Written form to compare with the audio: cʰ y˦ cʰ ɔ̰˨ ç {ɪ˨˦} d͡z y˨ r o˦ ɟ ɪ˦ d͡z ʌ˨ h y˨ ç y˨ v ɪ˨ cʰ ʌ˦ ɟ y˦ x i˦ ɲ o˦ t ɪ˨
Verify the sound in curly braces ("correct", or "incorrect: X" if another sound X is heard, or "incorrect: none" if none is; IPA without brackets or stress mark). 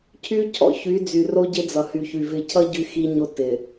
incorrect: y˨˦